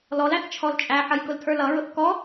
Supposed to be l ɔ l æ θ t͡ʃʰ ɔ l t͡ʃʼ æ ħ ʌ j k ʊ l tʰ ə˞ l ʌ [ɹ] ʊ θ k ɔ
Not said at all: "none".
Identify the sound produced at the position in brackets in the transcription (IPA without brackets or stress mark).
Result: ɹ